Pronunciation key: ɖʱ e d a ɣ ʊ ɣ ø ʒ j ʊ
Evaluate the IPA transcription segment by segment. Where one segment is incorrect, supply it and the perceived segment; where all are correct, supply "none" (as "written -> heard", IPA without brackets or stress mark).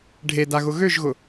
j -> ɣ